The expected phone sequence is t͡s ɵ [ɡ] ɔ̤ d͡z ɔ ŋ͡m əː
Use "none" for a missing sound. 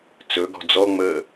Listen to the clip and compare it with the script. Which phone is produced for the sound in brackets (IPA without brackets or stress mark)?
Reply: ɡ